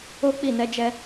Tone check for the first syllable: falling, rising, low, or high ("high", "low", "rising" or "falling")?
high